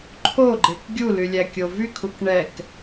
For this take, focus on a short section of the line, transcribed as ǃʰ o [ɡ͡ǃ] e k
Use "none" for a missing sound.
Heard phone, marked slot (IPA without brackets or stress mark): ɡ͡ǃ